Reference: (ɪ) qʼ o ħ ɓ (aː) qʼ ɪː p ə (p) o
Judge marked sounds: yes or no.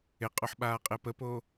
yes, yes, yes

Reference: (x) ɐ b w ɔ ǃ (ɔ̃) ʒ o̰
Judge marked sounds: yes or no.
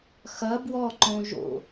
yes, no

